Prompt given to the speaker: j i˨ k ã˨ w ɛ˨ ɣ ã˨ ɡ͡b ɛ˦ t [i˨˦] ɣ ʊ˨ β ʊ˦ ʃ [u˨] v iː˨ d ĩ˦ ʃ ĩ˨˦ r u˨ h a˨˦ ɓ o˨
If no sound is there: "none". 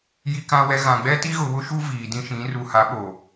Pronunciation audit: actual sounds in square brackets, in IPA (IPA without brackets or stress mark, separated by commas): i˦, u˦